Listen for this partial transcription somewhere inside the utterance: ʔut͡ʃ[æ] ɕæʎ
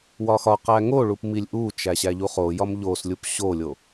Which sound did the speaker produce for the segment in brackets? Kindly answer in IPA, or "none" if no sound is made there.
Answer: æ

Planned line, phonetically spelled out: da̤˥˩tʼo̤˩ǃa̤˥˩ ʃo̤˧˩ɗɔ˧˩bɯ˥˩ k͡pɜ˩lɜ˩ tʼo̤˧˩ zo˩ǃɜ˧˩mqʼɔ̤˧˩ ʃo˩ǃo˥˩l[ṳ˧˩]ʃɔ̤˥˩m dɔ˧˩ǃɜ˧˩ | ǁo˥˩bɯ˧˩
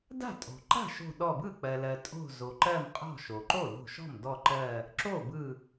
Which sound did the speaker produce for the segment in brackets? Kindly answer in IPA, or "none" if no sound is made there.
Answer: o̤˧˩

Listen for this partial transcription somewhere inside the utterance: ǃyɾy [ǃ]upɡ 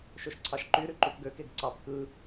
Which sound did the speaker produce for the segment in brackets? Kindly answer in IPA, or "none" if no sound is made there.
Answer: ǃ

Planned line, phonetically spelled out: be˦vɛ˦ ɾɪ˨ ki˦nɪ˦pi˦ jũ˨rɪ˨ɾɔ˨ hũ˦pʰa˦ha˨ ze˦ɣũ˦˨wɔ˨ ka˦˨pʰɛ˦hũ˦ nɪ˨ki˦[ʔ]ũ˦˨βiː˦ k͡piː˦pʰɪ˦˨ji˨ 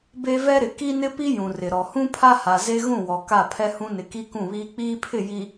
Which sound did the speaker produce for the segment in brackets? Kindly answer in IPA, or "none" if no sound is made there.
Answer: k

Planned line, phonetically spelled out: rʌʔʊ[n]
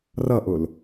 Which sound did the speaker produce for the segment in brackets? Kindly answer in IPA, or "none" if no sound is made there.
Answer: l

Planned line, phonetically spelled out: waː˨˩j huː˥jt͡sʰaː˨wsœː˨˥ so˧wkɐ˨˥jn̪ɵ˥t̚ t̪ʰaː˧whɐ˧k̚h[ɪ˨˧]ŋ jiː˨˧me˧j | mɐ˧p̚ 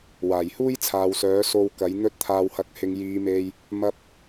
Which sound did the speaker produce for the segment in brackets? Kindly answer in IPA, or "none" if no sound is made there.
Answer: ɪ˨˧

